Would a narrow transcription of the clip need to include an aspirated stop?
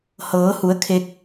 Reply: yes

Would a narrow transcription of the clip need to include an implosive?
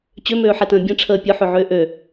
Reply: no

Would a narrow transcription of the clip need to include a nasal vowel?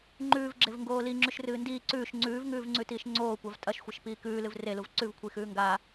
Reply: no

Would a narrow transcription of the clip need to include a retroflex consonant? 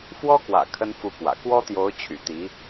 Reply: no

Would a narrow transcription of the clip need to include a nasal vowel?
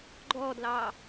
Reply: no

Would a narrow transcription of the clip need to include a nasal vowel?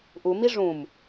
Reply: yes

